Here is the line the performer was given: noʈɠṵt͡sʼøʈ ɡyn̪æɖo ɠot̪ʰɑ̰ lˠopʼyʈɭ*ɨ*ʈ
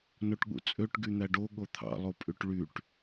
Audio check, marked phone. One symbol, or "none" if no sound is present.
y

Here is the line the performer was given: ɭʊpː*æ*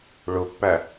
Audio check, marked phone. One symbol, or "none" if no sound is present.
æ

